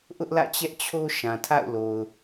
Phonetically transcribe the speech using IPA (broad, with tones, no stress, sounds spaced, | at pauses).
ʔ ʊ˦ ʔ l ä̰˦˨ t͡ɕ ɛ˦ ʔ t͡ɕʰ o˦ ʃ ã˨ tʰ a̰˦˨ ʊ̯ l o˨ ʊ̯